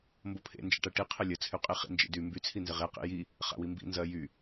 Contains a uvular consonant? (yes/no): yes